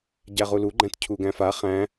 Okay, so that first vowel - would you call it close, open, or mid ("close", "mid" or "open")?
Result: open